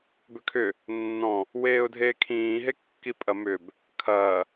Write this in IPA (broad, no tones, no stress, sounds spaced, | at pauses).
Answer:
b ʏ kʰ ʏ | nː ɔ̃ | w eː ʊ̯ dʱ eː kʰ ĩː ɦ e kː i pʼ ɐ m ʏ b | kʰ ɐː